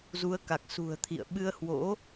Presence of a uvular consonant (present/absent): absent